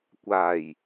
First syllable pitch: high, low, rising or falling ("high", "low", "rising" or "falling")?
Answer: low